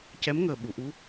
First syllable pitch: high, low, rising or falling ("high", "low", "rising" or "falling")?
rising